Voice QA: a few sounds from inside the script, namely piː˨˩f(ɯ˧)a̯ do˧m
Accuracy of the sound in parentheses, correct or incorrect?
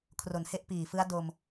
incorrect